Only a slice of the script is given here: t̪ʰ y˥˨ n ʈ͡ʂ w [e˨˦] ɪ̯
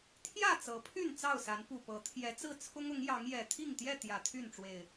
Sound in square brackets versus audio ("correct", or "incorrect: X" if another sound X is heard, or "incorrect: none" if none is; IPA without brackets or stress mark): incorrect: e˨˩